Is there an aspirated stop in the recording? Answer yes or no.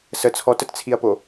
yes